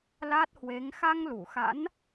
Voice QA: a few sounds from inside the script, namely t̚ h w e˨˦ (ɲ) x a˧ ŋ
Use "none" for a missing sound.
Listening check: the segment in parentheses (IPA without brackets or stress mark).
ŋ